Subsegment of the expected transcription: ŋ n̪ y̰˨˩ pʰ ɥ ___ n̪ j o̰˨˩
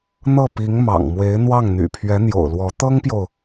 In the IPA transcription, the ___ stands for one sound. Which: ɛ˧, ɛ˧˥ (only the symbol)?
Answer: ɛ˧˥